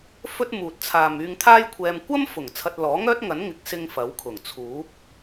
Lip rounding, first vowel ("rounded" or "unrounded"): rounded